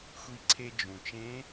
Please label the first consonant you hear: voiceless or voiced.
voiceless